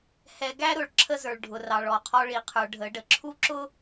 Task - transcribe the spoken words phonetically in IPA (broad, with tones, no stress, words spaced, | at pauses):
hɛ˨ ɡæ˦ɾʊ˨ɭ ǁʰə˦zə˞˨ɭ ɖʱʊ˨rɑ˨ɭɔ˨qʰɔ˦ ɭi˨qʰə˞˨ ɖʱə˨˦ɖə˨ ǁʰu˦ǁʊ˦